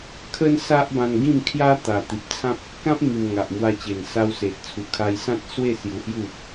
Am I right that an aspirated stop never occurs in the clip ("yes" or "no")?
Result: no